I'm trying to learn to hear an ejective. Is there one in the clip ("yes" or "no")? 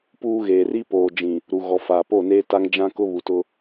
no